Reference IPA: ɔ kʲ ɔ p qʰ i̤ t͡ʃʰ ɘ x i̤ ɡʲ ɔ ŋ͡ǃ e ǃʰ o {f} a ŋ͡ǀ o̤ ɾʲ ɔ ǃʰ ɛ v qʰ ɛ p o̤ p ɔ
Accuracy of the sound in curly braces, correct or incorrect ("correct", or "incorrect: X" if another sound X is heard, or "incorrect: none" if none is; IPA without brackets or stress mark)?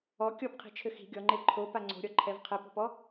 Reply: incorrect: p